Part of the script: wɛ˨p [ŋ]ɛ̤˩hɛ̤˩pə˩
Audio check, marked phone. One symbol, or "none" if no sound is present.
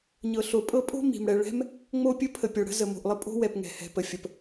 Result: ŋ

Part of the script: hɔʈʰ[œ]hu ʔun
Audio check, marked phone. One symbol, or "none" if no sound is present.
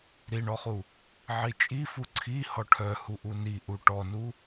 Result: œ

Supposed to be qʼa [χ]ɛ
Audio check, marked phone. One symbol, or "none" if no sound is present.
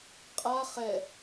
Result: χ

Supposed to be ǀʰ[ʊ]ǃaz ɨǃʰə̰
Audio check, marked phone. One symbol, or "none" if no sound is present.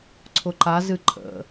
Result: ʊ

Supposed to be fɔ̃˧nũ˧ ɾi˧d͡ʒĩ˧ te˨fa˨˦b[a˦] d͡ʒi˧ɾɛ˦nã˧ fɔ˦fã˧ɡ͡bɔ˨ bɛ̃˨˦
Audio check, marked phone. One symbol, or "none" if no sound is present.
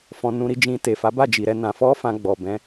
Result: a˦˨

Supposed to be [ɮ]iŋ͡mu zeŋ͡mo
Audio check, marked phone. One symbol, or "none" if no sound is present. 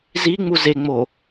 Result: z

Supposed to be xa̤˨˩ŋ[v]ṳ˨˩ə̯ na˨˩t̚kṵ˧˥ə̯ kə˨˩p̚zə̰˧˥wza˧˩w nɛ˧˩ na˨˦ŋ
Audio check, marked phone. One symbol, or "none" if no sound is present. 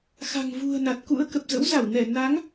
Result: v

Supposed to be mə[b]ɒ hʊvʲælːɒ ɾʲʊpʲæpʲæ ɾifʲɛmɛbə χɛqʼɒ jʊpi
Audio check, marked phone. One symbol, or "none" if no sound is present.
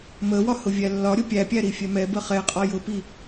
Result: w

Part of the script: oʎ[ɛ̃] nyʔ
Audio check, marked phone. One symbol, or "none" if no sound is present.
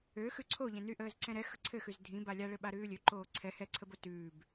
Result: ɛ̃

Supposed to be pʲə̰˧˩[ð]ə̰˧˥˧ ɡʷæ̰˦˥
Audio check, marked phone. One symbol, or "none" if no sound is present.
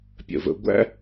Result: v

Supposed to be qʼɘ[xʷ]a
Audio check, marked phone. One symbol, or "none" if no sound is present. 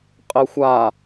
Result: xʷ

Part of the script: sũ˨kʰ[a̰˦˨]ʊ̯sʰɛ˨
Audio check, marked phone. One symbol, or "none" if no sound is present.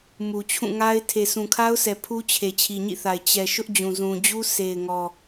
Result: a˦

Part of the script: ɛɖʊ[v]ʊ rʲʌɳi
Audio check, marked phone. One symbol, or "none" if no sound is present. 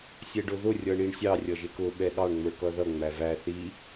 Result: ð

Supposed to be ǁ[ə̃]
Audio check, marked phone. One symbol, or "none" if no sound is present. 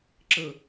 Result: ə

